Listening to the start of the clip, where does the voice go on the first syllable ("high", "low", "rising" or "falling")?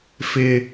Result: low